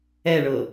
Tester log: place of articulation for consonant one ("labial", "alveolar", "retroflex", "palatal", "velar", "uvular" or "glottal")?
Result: retroflex